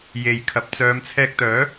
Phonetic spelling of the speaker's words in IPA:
j e˨ j kʰ ɐ˨˥ p̚ t͡s œː˨˧ m t͡sʰ ɛː˧ k̚ t̪ œː˨˥

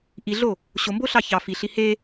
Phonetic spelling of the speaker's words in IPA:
ʔ i ɮ o | ɕ o m b o ɬ ɑ ç ɑ f i ɬ i h e

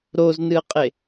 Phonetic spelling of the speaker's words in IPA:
ɾ o z n ɨ ə̯ qʼ e

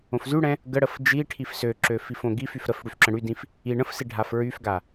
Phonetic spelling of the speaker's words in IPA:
õ f z y ɽ ɛ̃ | ɡ ə ɽ ə f d͡ʒ i ʈʰ i f s ø ǁ ø f i f õ ɡ i f y f ɾ ə f ɽ y f ǁ ə̃ ɽ y d ĩ f | i ɳ ə̃ f s i ɖʱ a f ɹ y f ɡ a

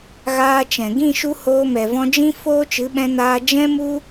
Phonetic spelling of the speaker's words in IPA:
ɣ aː˧ t͡ʃ ɛ̃˨ ɡ ĩ˦˨ ʃ u˧ h oː˧ m ɛ˨ v ɔ̃˧ d͡ʒ ĩ˦ f oː˦ t͡ʃ ɨ˨˦ ɓ ɛ̃˧ n aː˧ d͡ʒ ɛ̃˦ m u˦

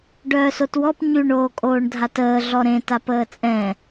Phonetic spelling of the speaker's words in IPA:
ɖ œː s o t w ɔ p ɲ y ɳ oː kʼ oː ɳ dʱ a t əː ɮ ɔ ɾ ẽ t a p əː t͡sʼ ɛ̃

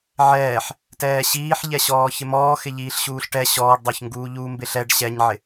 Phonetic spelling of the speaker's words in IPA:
ʕ ɛː ħ | t ɛː ɕ iː ħ ʎ ɛ ɕ ɔː ç ɪ m ɔː x ɪ ʎ iː ɬ ɕ uː ɬ ʈ ɛ ɕ ɔː ɖ dˤ o ç ŋ ɡ uː ʎ uː m b ɪ ɬ ɛ ɖ ɕ ɛ ɲ ʕ ɪ

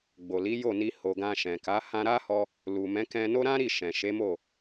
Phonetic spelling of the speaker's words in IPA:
ɡ͡b o˨ l i˨˦ j o˦˨ n i˧ h o˨ ɡ ã˧ ʃ ɛ̃˨ k a˨˦ h ã˧ ɾ a˦ h ɔ˧ | l u˨ m ɛ̃˨˦ k ɛ̃˧ n o˦ ɾ ã˦ ɾ i˦˨ ʃ ɛ̃˨ ʃ e˨˦ m o˦˨

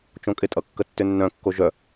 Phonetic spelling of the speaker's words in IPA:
t͡ʃ õ kʼ ɪ tʼ ʌ kː ə tː ʏ nː œ̃ kː o ʒ œ

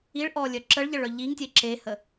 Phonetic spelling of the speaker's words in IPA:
i ɭ ʔ ɔ lʲ œ ǁ ə ɭ ʎ ə ɭ œ ʎ i ŋ tʲ e ǁ e h ə

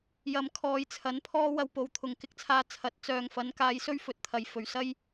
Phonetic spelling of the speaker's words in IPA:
j ɐ˨ m kʰ ɔː˨ j t͡sʰ ɐ˨˧ n pʰ ɔː˥ w ɐ˧ w p o˨˧ w t̪ʰ ʊ˨ ŋ k ɪ˧ k̚ t͡sʰ aː˧ t͡sʰ ɐ˨˥ t̚ t͡s œː˨ ŋ f ɐ˨˥ n k aː˧ j s ɵ˥ ɥ f ɵ˨ t̚ t̪ʰ ɐ˨ j f ɵ˨ ɥ s ɐ˥ j

